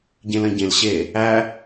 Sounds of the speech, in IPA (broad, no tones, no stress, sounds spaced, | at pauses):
ɟ ẽ l ɐ̃ ɟ ẽ l ɕ e | æ